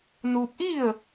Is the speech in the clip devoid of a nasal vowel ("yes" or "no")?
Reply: yes